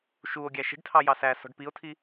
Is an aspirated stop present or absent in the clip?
present